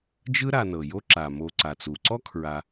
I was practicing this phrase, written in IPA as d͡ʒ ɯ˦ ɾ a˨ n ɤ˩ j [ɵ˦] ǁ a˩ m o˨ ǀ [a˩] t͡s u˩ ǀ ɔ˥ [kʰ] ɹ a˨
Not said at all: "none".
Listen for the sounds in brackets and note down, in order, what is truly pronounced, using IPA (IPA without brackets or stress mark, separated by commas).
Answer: o˦, a˩, kʰ